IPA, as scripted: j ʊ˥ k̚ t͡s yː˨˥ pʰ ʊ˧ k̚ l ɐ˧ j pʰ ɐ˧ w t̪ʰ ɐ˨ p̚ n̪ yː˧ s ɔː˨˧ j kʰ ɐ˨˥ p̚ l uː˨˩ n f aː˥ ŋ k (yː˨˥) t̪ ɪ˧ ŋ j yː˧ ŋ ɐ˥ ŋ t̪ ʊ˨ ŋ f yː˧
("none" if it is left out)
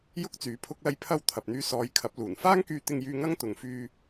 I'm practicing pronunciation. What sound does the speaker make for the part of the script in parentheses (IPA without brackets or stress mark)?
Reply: yː˧